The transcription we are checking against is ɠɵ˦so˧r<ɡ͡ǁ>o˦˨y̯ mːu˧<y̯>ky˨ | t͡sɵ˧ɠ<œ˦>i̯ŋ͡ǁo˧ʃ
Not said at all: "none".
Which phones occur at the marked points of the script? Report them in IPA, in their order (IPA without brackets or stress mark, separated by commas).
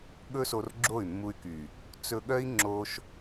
ɡ͡ǁ, y̯, œ˦